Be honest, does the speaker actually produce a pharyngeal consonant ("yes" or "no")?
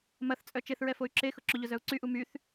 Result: no